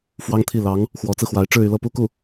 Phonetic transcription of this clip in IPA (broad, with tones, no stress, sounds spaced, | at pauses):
f w ɑ˥ ŋ t̪ʰ i˥˩ l ɑ˧˥ ŋ | x w ɔ˧˥ t͡s ɹ̩˧ x w a˧˥ ɪ̯ ʈ͡ʂ ɻ̩˥˧ y˥˧ l ɤ˥˧ p u˥˧ k u˥˩